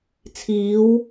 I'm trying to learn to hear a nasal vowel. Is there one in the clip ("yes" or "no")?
no